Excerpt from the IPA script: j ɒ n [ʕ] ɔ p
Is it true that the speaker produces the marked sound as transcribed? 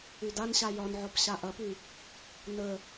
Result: yes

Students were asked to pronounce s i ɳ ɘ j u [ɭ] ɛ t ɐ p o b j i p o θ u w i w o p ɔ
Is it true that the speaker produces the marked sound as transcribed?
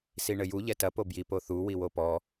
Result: no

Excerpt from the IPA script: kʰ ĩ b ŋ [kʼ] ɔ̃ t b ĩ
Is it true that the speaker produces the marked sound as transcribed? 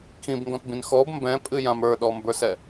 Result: no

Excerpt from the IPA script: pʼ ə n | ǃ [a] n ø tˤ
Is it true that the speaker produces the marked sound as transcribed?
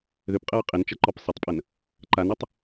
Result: yes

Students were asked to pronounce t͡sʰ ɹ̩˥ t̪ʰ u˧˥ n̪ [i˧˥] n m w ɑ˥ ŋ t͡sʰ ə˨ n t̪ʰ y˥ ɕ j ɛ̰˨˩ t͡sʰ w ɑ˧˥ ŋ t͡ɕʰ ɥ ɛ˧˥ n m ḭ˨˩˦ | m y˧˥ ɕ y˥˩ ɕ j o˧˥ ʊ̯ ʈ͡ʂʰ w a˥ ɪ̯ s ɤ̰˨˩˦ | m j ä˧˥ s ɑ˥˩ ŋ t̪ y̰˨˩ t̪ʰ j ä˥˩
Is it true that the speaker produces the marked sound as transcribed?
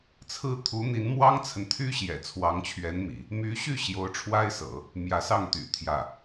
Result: yes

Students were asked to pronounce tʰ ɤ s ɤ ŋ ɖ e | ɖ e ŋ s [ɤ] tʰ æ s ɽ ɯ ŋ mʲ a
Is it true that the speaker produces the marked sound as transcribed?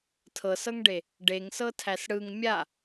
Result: yes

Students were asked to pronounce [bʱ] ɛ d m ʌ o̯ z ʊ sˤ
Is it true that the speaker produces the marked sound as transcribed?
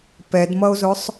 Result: no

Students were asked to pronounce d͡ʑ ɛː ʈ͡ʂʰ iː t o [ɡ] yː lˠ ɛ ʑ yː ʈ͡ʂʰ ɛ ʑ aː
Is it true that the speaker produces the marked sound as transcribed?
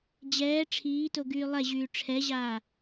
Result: yes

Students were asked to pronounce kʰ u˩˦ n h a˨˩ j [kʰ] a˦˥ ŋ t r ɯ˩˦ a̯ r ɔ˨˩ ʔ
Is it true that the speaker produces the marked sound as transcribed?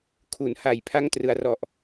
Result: no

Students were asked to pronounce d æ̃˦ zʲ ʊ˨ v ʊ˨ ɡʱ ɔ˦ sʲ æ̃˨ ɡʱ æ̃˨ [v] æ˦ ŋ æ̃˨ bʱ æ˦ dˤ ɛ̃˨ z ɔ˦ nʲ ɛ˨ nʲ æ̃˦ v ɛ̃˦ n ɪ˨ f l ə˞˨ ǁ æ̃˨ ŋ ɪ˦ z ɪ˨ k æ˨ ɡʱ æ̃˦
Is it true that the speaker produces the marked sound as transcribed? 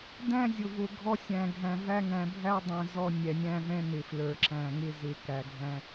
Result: yes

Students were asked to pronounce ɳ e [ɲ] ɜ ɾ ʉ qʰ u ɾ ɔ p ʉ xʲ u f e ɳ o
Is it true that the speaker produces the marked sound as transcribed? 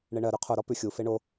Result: no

